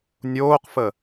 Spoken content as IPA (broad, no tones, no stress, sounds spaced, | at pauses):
nʲ oː q f ə